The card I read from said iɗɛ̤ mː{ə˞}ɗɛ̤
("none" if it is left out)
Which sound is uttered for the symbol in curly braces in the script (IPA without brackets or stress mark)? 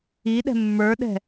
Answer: ə˞